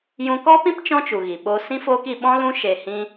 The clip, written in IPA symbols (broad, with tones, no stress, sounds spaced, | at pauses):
j ũ˧ k ɔ˦ p ĩ˦ p t͡ʃ ɔ̃˦ t͡ʃ u˨ ɣ i˨ ɓ o˦ s ĩ˦ f oː˦ k i˧ ɓ ɔ̃˦ l ũ˦ ʃ e˧ h ĩ˦